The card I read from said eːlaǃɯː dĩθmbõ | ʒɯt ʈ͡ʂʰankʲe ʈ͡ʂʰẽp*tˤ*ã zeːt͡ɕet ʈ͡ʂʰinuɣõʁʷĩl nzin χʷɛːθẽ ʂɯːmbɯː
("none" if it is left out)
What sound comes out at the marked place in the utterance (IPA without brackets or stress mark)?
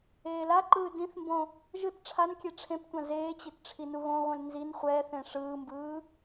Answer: tʷ